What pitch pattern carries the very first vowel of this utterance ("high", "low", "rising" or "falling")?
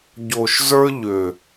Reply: low